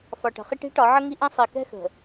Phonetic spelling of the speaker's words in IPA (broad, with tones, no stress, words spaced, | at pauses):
fɒ˨ʈə̤˨χi˦ʈ i̤˦ʈɒ˨˦ʕə˦ ŋi˦ʔɛ̃˦ sˤi˨kɛ̤˦xə̤˨